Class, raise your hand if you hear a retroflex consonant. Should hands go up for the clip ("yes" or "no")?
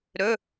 no